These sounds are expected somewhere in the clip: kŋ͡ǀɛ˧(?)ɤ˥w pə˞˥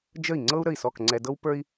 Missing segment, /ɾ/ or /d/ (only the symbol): d